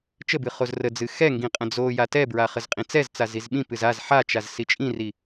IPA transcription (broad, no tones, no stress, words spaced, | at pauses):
t͡ʃəbɨ χozrəd͡zɨ xɛŋɡĩ qʼə̃d͡zoja tɛbɹa χəzqʼĩt͡sɛzt͡saz izɓĩpɨz az ħat͡ʃaz sit͡ʃʼĩri